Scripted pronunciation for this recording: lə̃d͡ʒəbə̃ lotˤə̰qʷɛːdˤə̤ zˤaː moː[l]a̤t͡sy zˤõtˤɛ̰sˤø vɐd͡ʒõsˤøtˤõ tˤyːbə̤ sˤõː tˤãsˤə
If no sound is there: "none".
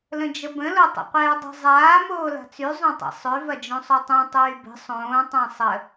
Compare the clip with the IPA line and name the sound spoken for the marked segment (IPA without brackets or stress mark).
l